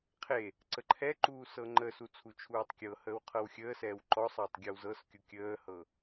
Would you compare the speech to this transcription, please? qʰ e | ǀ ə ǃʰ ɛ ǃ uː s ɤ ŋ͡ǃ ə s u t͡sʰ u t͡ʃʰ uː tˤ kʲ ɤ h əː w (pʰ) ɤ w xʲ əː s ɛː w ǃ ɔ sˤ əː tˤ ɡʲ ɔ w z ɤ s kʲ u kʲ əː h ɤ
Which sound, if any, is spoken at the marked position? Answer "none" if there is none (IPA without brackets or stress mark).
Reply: qʰ